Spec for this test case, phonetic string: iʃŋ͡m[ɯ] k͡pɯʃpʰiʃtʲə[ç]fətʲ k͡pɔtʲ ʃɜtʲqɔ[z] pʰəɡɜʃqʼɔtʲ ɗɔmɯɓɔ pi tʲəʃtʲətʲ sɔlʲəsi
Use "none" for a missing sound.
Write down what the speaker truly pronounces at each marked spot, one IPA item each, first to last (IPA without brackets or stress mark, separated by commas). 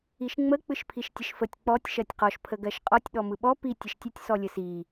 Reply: ə, ʃ, ʃ